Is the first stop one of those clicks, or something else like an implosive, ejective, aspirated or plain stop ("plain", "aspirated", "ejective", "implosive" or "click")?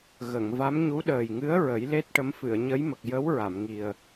implosive